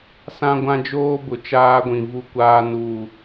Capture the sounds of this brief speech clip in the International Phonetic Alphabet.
s ã˦ ɡʷ ã˦ d͡ʒ oː˦ b ʊ˨ t͡ʃ aː˦ ɡʷ ĩ˨ v u˦ kʷ aː˦ n u˦˨

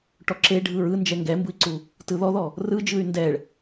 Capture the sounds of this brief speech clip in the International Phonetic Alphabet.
ʈ ɔ ǁ e ɖʱ ɯ ɹ ɯ n d͡ʒ ɛ ŋ ɡ ɛ m b ɯ i̯ ǀ u | t ɯ ð ɔ ð ɔ | r ɯ d͡ʒ ɯ y̯ n d ɛ ɭ

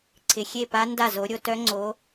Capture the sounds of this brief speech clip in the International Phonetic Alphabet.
ǀʰ ɪ˨˩ xʲ e˥˩ p a˦˥ n d a˥˩ z o˨˦ ɾʲ o˥˧ t œ˦˥ ŋ͡ǀ o˨˦

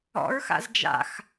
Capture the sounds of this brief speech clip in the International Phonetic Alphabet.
ɔ̰ ɹ x a̰ z d͡ʒ a̰ x

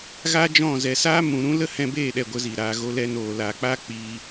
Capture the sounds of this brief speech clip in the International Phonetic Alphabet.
ɣ a˦ d͡ʒ ɔ̃˦˨ z ɛ˨ s aː˦ m ũ˨ ɾ ũ˦ l ə˦ h ɛ̃˧ b eː˦˨ ɗ ɛ˨ ɡʷ ə˨˦ z i˨ ɾ aː˧ ɣ o˦ l ɛ˦ n oː˧ l a˨ k͡p a˦ k͡p iː˧

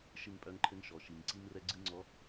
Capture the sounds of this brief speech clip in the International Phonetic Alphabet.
ʃ ɨ˦˨ ŋ pʼ œ˦ ŋ ǃʰ ɘ˦ ŋ ʃ ɔ˨ ʃ i˨ ŋ ǀ i˦ ŋ r ɛ˦ ɡ͡ǀ ɨ˦ ŋ͡ǀ ɔ˨˦

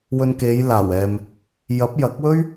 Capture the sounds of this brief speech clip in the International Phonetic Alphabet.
w ɵ˧ n k e˨˧ j l aː˨˩ w ɛː˨ m | j ɐ˨˥ p̚ j ɐ˨˥ k̚ w ɵ˥ ɥ

